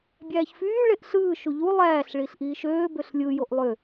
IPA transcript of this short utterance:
bʲæːçfyː ɭeʔɬɯː ʃuʎu lˠæːɬɭiɬ ʔiːʃøː bøɬlʲɯ joʔlˠø

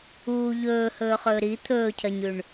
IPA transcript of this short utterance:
uː ʎɵːhɵːχɵː ɾi t̪ʰɵːcʰɐɲʉɳ

